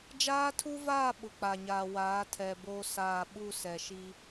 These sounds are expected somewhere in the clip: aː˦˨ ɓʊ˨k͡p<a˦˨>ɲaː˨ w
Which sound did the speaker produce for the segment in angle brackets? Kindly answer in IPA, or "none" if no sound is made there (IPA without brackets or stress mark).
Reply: a˨